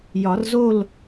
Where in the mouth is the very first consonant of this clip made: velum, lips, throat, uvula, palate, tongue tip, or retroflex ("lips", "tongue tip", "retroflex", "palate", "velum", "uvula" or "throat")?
palate